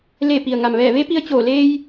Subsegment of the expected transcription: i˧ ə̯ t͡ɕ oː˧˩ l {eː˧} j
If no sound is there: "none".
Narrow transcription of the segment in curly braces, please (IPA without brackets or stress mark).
eː˧